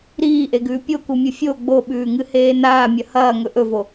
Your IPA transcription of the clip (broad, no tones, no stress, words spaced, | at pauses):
ɾiːʔeɡʉː pʲokumʲɨ fʲo ɡ͡boɓʉːŋɨheː naːmʲɐ hɐːŋɵ ʔɵvo